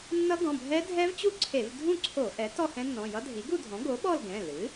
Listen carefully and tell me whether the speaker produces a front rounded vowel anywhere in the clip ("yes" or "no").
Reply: no